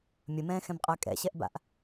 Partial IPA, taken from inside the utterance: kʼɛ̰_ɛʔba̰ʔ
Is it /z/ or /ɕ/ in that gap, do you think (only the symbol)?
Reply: ɕ